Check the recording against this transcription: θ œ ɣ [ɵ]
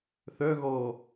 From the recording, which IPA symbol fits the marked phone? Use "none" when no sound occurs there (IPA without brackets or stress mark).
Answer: ɔ